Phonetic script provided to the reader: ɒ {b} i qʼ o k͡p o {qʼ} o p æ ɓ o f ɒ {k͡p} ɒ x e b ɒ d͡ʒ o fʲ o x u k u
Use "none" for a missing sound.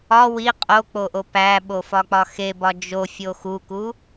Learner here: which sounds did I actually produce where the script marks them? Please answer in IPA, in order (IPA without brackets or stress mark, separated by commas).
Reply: w, ʔ, k͡p